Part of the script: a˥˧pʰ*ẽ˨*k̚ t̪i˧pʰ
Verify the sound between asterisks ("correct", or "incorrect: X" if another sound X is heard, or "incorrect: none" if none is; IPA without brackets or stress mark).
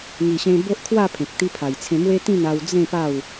correct